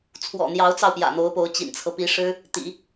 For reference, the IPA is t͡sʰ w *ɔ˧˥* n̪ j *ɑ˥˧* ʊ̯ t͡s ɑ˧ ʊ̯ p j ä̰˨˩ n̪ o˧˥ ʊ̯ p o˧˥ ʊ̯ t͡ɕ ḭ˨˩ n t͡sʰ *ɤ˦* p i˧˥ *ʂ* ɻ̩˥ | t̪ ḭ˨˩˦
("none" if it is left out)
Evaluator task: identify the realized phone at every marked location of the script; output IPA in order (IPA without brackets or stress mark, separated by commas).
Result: ɔ̰˨˩, ɑ˧˥, ɤ˦, ʂ